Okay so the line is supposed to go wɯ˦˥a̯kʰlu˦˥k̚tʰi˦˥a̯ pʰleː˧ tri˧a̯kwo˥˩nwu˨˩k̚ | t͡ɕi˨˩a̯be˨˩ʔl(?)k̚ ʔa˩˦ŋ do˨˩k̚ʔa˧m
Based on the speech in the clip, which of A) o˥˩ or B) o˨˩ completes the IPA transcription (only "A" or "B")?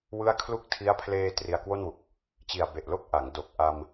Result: A